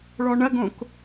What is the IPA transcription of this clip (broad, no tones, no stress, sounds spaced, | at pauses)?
ɭ ɔ ɳ ɐ ɡ õ k